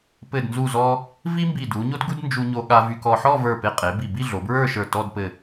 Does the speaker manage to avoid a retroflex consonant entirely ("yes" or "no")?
yes